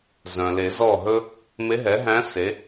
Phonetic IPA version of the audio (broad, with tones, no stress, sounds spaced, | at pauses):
z œ̃˩ l e˨˩˦ z ɔ˥˩ ɦ ɵ˥ | m e˧˥ ɦ ɛ˩˥ ɦ æ̃˧˥ s e˩˥